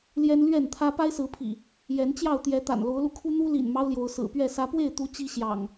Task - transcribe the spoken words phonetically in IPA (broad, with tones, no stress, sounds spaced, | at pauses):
l j ɛ˦ n l ɥ ɛ˥˨ n t̪ʰ ä˦ p a˦ ɪ̯ s ɹ̩˨˦ pʰ ḭ˨˩ | j ɛ˨˦ n t͡ɕ j ɑ˥˨ ʊ̯ t̪ j ɛ˨˦ t̪ a̰˨˩ n l o˨˦ ʊ̯ l u˧ kʰ u˦ n̪ u˦ l ḭ˨˩ n m ɑ˦ ʊ̯ l j o˨˦ ʊ̯ s ɹ̩˨˩ p ɥ ɛ˥˨ s ä˨˦ p w e˥˨ ɪ̯ t̪ u˨˦ t͡ɕ i˦ ɕ j ɑ̰˨˩ ŋ